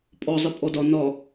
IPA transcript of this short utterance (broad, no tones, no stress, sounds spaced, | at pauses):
pʼ ɔ zˤ ɘ pʼ ɔ d ɒ n ɒ